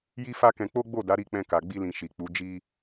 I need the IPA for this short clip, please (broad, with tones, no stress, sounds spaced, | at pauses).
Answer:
j i˦ f a˦ k ɛ̃˧ k͡p o˦ ɡ͡b o˦˨ d a˨˦ ɾ i˦˨ k͡p ɛ̃˧ k a˨ ɡ͡b i˧ l ĩ˨ ʃ i˨ k͡p u˨˦ d͡ʒ i˧